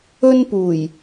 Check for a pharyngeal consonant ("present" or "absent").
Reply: absent